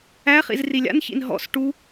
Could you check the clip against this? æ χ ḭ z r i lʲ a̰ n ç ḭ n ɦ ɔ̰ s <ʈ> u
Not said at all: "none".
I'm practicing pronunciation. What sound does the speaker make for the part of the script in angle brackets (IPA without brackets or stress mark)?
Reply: ʈ